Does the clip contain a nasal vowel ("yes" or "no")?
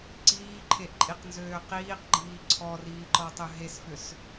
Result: no